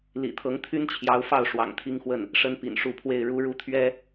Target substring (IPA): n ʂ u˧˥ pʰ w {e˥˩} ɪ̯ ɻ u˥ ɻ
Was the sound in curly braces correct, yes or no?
yes